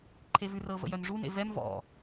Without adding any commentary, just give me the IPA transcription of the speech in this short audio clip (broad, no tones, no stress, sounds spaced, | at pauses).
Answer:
ǃʰ e v ʉ r ɤ v ə̰ j œ n ʐ u n ḛ v ɛ m v ɔ̰